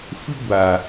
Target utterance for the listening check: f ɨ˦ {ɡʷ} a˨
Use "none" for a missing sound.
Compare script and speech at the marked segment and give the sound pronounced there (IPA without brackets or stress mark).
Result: ɡʷ